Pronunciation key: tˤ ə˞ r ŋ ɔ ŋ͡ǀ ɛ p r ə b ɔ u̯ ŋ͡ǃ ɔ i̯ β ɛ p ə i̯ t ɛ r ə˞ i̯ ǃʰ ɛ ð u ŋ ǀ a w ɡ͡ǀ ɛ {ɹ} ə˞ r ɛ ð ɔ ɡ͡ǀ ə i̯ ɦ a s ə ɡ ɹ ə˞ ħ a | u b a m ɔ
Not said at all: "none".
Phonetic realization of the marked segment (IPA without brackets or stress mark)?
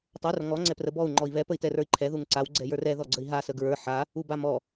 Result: j